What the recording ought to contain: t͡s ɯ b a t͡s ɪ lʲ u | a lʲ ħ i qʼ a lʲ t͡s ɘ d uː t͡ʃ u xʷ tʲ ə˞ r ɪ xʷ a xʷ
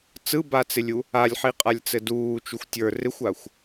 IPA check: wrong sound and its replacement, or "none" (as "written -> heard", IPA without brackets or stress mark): none